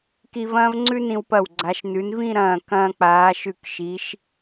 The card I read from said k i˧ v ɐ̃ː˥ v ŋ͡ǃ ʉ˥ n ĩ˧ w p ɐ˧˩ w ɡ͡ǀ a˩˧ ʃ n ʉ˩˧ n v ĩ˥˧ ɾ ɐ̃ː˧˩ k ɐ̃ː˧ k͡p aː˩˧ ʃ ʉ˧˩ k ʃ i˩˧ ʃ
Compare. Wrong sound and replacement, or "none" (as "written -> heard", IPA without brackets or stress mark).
ŋ͡ǃ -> ŋ͡ǀ